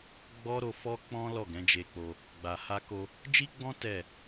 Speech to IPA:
ɡ͡bɔ˦ ɾo˧fɔ˦ k͡pɔ̃˦ lɔ˦˨ɡɛ̃˨˦d͡ʒe˧k͡po˧ | ɡ͡ba˨ha˧ko˧ | d͡ʒi˦ɡ͡bɔ̃˦ tɛ˦˨

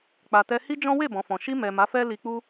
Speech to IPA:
k͡pa˨tɛ˧ hi˦d͡ʒɔ̃˦ we˦˨bɔ̃˨ fɔ̃˨ ʃi˧mɛ˨ ma˨˦fɛ˦ li˧k͡pu˦

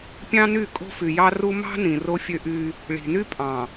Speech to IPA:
pʲɑ̃˦ny˦˨ kʼo̤˦fy˨jɑ˦ru˦ mɑ̤˦ nĩ˨ro˦fʲø˦ʔy˦ | ɭi̤˨ny˦pʼɑ̃˨

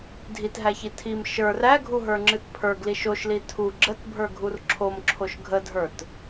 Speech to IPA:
dʱitɦæçi tʰim ʃə˞r æɡʱuɦə˞ŋ͡ǁɨt pʰə˞ɡliʃ oʃli tʰu ɡ͡ǁətbʱə˞ɡʱur ǁʰomǁʰoʃ ɡʱədʱə˞t

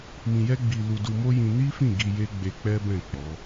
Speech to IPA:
mĩ˧jɛ˦ɡ͡bi˧ lu˧du˧mo˦jĩ˧ ni˦fĩ˦˨ ɡi˧je˦ ɡ͡be˧k͡pɛ˦bɛ̃˦˨ k͡pɔ˨˦

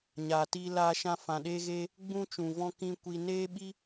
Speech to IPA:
ɲaː˨tiː˧laː˧ʃã˧ fã˨ɗeː˧ɣeː˧ | ɡ͡bũ˦t͡ʃũ˨ vɔ̃˧ kĩ˧ kʷi˧ neː˦ɓi˦

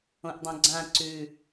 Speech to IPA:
õʔdˤõɡ͡ǀã ǀʉ

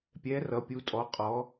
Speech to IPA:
pʲɛ˩˧ rʌ˩˧pʲu˩˧tʼɔ˩˧ qʼɔ˩˧

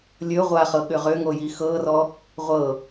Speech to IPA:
lʲɵ ʁʷaχɤ ɠʏʁʏŋo jixɤrɔ | ʁʷɤ

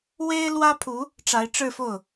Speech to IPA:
we˥ɪ̯lwä˥pʰu˧˥ | ʈ͡ʂa˧˥ɪ̯ʈ͡ʂɻ̩˥˧fo˥˩ʊ̯

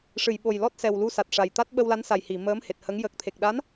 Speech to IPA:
ʂɨ˨˩˨jɓo˨˩j lɔ˦˥t̚sɛ˨˩w lu˧sa˨˩t̚ʂa˨˩jt̪a˦˥t̚ ɓə˧wla˧˥nsa˨˩j hi˨˩˨ məː˧˥mhe˨˩t̚hə˧˥ŋ jə˨˩k̚t̪ʰe˨˩k̚ɗa˧˥n

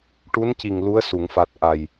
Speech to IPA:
ʈu˧˥nci˨˩ŋ lu˧˥ə̯su˨˩˨ŋfa˨˩t̚ ʔa˨˩j

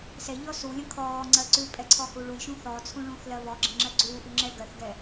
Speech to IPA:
sɛʎɔ sulʲə̃ kʰɔː ŋ͡ǀɜǀʉpʼɛ ǀʰɔhuɭulʲʃũ θɔt͡sʰũ ɭũːθlɜβɔɡ͡ǁə̃ ŋ͡ǁɜɡ͡ǀuːʔʉ ŋ͡ǁɛɡɜθɡɛ

